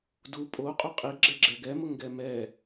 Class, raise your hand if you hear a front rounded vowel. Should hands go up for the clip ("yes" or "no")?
no